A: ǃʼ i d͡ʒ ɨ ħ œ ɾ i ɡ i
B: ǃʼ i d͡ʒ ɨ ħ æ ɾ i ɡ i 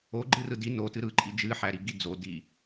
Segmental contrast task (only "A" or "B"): B